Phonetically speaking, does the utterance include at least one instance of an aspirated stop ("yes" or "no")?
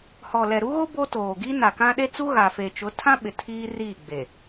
yes